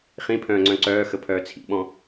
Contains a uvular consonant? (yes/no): yes